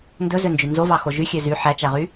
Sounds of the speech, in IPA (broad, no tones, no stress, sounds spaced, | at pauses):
n d ɵ z ø n d͡ʒ y n z o v ɑ x o ʒ y xʲ ø z y ħ æ t͡ʃ æ ʁ y